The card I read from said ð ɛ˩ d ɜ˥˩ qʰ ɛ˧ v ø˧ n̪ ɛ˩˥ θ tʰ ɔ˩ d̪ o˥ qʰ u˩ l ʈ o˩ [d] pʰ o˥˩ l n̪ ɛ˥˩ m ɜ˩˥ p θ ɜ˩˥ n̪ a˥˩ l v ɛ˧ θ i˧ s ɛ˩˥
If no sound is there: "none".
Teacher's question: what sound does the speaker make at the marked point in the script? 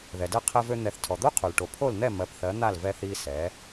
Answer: none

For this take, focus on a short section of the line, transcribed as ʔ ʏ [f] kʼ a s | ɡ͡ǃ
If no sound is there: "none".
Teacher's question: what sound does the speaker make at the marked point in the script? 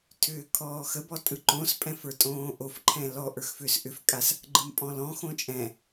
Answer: f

